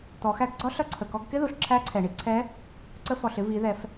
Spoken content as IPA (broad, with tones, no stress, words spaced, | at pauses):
t̪ɔ˩˧xæ˧ɡɡ͡ǀɒ˧˥ ɬʌ˧˥ǀʰə˩ kɔ˧ɡkɪ˥ðu˩ɬ ǁʰæ˧˥ǀʰɛ˩ɳi˧ ǀʰɛ˧˥ | ǀə˧fɔ˩ɬɪ˧ vi˩˧ðɛ˩˧f